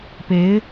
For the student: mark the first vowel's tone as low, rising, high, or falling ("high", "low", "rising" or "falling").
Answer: rising